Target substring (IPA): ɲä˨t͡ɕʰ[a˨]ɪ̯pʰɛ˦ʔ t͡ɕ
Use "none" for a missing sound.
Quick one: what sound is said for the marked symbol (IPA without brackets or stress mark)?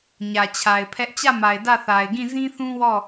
a˨